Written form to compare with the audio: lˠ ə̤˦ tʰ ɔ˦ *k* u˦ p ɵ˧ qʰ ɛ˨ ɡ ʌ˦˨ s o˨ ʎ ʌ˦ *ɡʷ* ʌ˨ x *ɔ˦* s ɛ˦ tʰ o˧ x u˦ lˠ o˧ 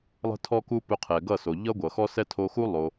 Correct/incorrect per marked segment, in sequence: correct, correct, correct

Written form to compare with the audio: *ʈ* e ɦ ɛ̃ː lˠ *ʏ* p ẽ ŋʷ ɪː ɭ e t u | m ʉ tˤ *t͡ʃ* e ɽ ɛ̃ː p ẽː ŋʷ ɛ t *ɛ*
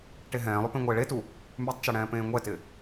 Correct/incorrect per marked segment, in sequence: correct, correct, correct, incorrect: ɪ

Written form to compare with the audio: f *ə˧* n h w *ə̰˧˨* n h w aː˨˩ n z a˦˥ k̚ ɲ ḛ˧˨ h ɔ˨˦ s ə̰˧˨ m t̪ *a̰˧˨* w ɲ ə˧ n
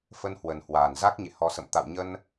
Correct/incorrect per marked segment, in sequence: correct, incorrect: ə˨˩, correct

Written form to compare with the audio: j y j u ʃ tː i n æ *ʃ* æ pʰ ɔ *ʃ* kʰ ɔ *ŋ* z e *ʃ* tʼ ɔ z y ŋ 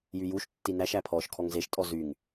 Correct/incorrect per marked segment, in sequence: correct, correct, correct, correct

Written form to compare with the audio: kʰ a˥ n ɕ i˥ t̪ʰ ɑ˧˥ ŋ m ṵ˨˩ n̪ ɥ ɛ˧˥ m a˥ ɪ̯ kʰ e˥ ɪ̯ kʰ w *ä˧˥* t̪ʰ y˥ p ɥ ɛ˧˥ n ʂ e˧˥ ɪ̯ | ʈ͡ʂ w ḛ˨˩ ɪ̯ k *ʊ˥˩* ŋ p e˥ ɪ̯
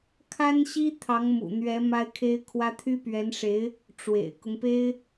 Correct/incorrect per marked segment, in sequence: incorrect: ä˥, incorrect: ʊ˦

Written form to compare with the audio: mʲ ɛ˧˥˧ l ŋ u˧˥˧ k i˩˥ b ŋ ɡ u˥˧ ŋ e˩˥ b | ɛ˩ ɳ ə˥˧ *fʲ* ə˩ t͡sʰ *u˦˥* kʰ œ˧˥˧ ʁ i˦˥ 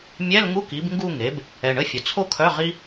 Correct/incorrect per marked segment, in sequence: correct, incorrect: o˦˥

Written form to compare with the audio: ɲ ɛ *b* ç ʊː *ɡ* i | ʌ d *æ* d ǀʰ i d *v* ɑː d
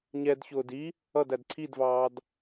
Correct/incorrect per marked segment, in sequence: incorrect: d, incorrect: d, correct, correct

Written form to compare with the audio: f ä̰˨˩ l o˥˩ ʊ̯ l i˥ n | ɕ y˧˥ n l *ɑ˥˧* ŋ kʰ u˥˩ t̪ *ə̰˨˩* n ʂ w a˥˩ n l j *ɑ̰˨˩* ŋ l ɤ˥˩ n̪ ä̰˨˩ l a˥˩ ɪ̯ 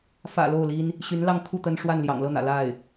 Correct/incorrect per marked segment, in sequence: correct, incorrect: ə˥, correct

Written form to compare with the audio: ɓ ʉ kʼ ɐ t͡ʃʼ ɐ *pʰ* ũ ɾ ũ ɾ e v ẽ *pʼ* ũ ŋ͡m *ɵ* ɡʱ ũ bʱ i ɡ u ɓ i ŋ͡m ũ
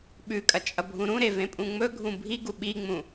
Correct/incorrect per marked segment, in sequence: incorrect: bʱ, correct, correct

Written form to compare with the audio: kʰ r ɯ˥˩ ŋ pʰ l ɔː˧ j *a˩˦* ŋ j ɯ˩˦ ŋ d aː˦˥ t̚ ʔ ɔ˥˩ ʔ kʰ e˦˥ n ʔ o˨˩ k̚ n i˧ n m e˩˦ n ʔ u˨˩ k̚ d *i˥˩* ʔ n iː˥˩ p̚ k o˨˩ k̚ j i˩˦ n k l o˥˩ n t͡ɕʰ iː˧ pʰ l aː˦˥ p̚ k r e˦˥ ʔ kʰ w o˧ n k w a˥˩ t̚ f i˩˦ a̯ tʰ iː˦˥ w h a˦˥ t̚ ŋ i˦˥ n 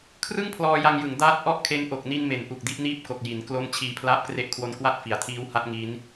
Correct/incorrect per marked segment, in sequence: incorrect: a˧, correct

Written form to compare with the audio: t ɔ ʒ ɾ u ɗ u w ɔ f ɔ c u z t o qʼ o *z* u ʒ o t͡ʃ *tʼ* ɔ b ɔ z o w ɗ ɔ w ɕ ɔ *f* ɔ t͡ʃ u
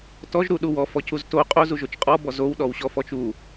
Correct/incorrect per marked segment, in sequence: correct, incorrect: qʼ, correct

